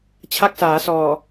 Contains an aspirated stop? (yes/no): yes